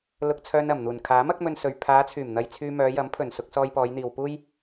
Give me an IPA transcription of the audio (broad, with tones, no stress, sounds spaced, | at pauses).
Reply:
l ʊ˧ k̚ t͡sʰ œː˧ n ɐ˨˩ m n̪ uː˨˩ n kʰ aː˨˥ m ɐ˧ k̚ m ɵ˧ n s ɵ˨ ɥ pʰ aː˨˧ t͡sʰ yː˨˩ m n̪ ɐ˧ j t͡sʰ yː˧ m œː˨˧ j ɐ˨˥ m pʰ ɵ˨˩ n s ʊ˧ k̚ s ɔː˧ j p ɔː˨˧ j n̪ iː˨ w p uː˥ j